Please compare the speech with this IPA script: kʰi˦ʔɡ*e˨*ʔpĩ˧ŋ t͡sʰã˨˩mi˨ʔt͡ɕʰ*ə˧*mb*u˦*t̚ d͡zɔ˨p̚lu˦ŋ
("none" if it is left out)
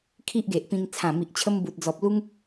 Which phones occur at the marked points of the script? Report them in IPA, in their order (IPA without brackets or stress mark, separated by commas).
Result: e˨, ə˧, u˨